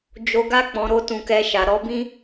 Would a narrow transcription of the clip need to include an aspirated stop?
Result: no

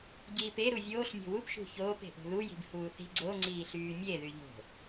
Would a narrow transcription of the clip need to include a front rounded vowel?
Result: yes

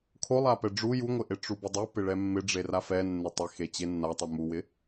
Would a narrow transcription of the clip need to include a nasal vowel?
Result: no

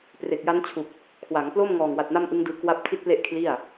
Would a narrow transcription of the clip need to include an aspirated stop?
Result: yes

